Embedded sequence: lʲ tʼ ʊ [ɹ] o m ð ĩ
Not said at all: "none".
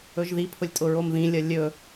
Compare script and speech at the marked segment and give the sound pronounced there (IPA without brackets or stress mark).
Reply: ɹ